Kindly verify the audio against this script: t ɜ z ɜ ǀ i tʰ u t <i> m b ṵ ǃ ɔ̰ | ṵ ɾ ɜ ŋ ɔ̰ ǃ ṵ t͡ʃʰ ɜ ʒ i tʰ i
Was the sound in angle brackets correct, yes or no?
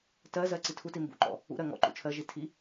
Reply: yes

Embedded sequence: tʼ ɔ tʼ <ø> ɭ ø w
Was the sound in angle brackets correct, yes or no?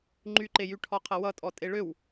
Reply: no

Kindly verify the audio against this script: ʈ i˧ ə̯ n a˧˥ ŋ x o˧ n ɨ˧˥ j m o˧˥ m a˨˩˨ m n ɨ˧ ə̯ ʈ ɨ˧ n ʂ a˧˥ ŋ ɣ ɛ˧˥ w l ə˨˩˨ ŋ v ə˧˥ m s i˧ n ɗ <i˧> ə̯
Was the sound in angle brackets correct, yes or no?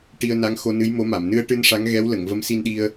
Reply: yes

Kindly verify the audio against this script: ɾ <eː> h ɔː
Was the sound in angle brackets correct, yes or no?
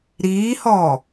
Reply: no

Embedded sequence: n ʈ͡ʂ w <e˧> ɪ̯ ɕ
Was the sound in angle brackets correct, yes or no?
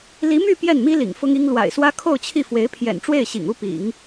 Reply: no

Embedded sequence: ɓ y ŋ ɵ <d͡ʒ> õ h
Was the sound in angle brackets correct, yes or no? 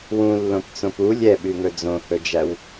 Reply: no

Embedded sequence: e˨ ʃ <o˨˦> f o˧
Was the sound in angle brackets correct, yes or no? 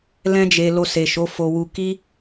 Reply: yes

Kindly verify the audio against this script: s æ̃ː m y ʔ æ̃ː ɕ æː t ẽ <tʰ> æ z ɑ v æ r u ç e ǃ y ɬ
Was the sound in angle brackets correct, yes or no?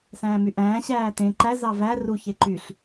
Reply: no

